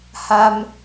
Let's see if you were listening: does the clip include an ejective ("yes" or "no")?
no